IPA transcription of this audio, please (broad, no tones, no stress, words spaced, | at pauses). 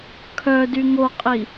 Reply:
kʰœ dyŋoqʼi